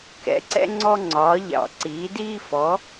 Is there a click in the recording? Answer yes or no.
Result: yes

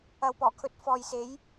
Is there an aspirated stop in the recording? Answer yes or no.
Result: yes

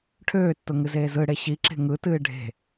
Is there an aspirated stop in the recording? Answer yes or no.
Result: yes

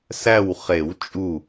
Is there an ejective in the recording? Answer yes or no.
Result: yes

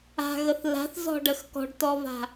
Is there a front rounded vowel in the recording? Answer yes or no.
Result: no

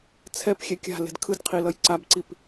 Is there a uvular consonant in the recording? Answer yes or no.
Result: yes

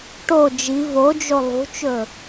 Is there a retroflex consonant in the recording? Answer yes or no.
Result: yes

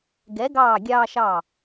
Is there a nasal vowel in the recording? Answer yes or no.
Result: no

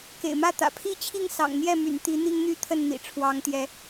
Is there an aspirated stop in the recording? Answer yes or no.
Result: yes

